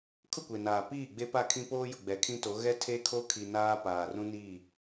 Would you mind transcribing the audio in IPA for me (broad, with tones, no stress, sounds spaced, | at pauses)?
kʰ ʊ˦˨ kʷ e˨ n aː˨ p iː˦˨ ɡ͡b e˦ p a˦˨ kʰ ĩ˦ p oː˦ j ʊ˨ ɡ͡b ɛ˨˦ kʰ ĩ˦ t o˨˦ ɣ ɛ˦ tʰ e˦ kʰ o˦ kʰ i˨ n aː˦ p aː˨ r ũ˦ n i˦˨